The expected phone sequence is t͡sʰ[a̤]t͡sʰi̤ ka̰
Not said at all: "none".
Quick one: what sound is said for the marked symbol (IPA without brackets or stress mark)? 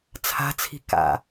a̤